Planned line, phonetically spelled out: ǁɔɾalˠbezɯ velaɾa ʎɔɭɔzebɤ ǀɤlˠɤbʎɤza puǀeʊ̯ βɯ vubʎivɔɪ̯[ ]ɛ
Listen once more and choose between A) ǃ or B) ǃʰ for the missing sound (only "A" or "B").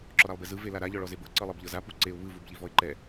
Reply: A